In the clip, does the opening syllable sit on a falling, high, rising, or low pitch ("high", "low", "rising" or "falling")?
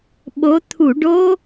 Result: rising